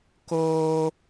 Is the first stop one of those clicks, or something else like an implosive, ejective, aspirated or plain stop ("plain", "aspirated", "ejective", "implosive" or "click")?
plain